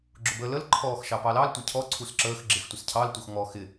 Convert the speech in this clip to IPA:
ɡ͡ǁ ʊ b əː l ə l ǃʰ ɔː x ʃ ɑ p ɑ l ɑ l tʷ ɪ cʰ ɔ ǀʰ u s ǁ əː x ɡ͡ǁ ɪ x tʷ ɪ s cʰ ɑ l tʷ ʌ x ŋ ɔ x ɪ

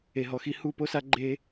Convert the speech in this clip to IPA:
e˨ ɦ ɔ˨ x i˧ h u˦˨ p o˦ s a˦ ɡ͡ǃ e˧

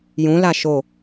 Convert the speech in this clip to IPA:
j ũ l a ʃ o

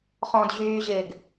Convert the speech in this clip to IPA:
χ ɔ̃ d ʑ yː ʑ ɪː ɡ

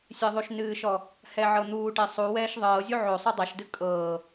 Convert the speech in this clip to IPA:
sʲ e ðˤ u ʃ n ɨː ʃ ɔ | h ɛ ʕ ɤ n̪ uː ʈ e sˤ u w ɛː ʃ ðˤ ɤː zʲ u ʕ o sˤ o dˤ ɛ ʃ d ɨ kʼ ɤː

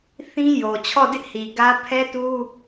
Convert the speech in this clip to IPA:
θ ĩ˦ j o˨ t͡ɕʰ ɔ˦˨ d ɪ˦ ʔ h i˨ ɡ ä˦ pʰ ɛ˦ t u˦

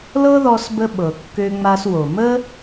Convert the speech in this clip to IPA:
l ɤ˦ ð ɔ˧ s b ə˧ ɓ ɤ˨ kː ø˧ ŋ͡m a˧ s w o˨ m ə˦

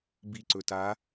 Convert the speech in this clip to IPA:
b i ǀ ɵ t a

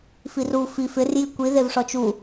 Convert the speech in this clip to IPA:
f i r u f i f ɪ r j i kʷ i ð e v ʂ ɔ t͡ʃ u

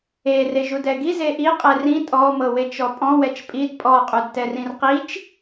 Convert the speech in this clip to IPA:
e r e ʒ u d ɛ ɡ i z e ʔ i qʼ ɛ r ĩ tʼ ɔ m ɤ w e t͡ʃ ɔ pʼ ɔ̃ w ɛ t͡ʃ pʼ i d pʼ ɔ qʼ u d t ɛ r ĩ r q i t͡ʃ

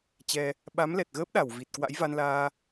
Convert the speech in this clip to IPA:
t͡ɕ ɛ˧ | ɓ a˨˦ m l ɛ˨˩ t̚ ɣ əː˦˥ p̚ ɗ a˧˩ w v i˨˩ t̚ k w a̰˧˥ j v a˧ n l aː˧

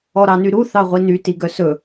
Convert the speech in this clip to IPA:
ɔ ɾ ɑ n y ɾ u θ ɑ ʁʷ i n y t i ɡ œ s ɵ

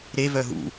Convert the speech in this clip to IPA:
ɾ e v œ ɦ ṵ

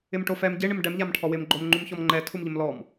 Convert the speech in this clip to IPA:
ɪ m ʈ o f ɛ m ɟ ɪ ɳ ɪ m ɖ ɛ m ʎ a m ʈʰ ɔ w ɪ m ɡ͡ǃ o m ŋ͡ǃ u m ç ɔ m ŋ͡ǃ ɛ tʰ u m ʎ ɪ m l ɔ m

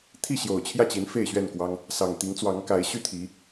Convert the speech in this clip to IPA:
t̪ʰ i˥˨ ɕ j o˨˩ ʊ̯ t͡ɕʰ j ä˥˨ t͡ɕ i˨˦ n f e˥˨ ɪ̯ ɕ ɥ ɛ˥˨ n k w ɑ˦ ŋ | s ɑ˨˩ ŋ t̪ i˨˦ ŋ t͡s w ɑ˨˦ ŋ k a˨˦ ɪ̯ ɕ y˥˨ t̪ʰ i˨˦

